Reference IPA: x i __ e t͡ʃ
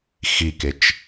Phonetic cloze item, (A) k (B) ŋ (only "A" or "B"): A